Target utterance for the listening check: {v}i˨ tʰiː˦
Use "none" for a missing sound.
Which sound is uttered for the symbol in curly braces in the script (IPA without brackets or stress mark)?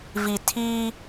v